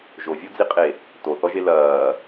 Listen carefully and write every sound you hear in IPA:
ʒ o vʲ o d͡z i qʼ e | t o θ ɔ ʒ e l ɐː

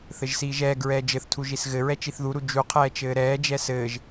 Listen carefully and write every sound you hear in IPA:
θ ɘ ʒ s iː ʒ ɛː ɡ ɹ ɛː d͡ʒ ɘ θ tʰ u ʒ i s ɣ ɘ ɹ ɛ t͡ʃ i θ ð u ɾ u d͡ʒ u qʰ ɛː t͡ʃ ɘː ɾ ɛː d͡ʒ ɛ s ɘː ʒ

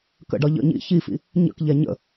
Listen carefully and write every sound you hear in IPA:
k ə̰ ɖ ɒ ʎ ə̰ ɲ ḭ ç i f ḭ | ɲ ə̰ k ʎ ɛ ɲ ə̰

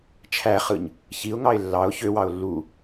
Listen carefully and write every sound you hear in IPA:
t͡ʃʰ æ χ ɯ ɲ | ç i ʊ̯ ŋ ɑ ɪ̯ lː ɑ ʊ̯ ç ø w ɑ ʊ̯ lː u

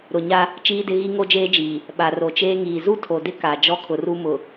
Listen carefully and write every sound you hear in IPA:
ɾ ʊ˨ ɲ a˦ | t͡ʃ iː˦ d ɪ˦ ɣ i˦ ŋ o˦ d͡ʒ eː˦ d͡ʒ iː˨ | ɓ a˨ r o˨ t͡ʃ eː˦ ŋ iː˨ z u˦ tʰ o˨ d ɪ˦ k a˨ d͡ʒ ɔ˦ kʰ ʊ˨ r u˦ m ʊ˨

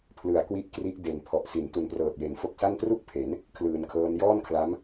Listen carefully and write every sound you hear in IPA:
pʰ l ɯ˨˩ a̯ k w i˦˥ ʔ k r i˦˥ ʔ d e˨˩ n pʰ ɔ˨˩ ʔ s i˩˦ n t u˨˩ n p r ɤː˨˩ t̚ j e˩˦ n f o˦˥ k̚ s a˥˩ n t r u˥˩ k̚ pʰ e˩˦ n | kʰ l ɯː˩˦ n kʰ ɤː˦˥ n j ɔː˥˩ n kʰ l a˦˥ m

